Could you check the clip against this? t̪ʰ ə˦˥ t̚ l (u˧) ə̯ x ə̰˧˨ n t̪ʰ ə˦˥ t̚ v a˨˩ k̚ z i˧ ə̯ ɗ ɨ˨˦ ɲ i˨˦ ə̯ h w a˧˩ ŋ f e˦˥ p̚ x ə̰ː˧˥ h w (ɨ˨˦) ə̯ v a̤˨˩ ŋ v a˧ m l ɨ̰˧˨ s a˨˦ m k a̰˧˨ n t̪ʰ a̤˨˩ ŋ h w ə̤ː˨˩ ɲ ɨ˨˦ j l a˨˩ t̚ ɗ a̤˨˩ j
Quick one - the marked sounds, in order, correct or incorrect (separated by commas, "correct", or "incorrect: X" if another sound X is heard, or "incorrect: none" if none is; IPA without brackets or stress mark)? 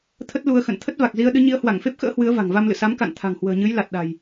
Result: correct, correct